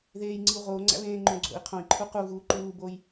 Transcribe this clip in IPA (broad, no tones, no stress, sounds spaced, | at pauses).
ð eː j ŋ͡ǀ i u̯ ʁ oː ŋ͡ǀ æ̰ β ẽː ŋ͡ǃ õ ɡ͡ǀ o̰ i̯ qʰ õ i̯ ǃʰ u q u ɣ uː ǃ uː b oː j